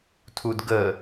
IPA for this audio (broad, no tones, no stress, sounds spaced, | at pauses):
tʰ u d ɡ ə